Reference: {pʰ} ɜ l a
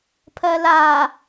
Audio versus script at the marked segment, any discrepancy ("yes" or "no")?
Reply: no